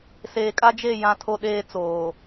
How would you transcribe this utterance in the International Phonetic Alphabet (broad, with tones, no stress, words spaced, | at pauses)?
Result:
seː˨kʼa˦d͡ʒe˦˨ jã˦tʰo˦ɗeː˦ t͡soː˨